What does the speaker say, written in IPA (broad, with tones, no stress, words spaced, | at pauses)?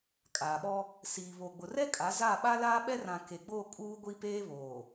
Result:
kʼaː˨ɓɔ˦ | siː˨ βo˨ɡ͡bʊ˨ rɛ˦ kʼa˨˦za˦˨ɓa˦laː˦ ɓɛ˦rã˨ ke˨ɡ͡bo˦˨ kʼuː˦ɡʷi˦peː˦βoː˨